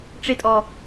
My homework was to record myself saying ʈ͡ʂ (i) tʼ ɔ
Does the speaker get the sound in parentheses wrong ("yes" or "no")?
yes